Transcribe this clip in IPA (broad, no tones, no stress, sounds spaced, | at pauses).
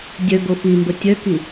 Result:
dʲ œ ɡ o f i m b ə tʲ œ k i